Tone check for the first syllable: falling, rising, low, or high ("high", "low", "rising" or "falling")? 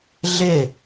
falling